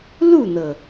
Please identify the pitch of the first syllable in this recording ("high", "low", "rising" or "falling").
falling